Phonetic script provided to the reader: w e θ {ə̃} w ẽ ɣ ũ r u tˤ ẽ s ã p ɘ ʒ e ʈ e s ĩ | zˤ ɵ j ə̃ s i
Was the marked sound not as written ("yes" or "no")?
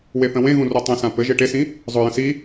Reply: no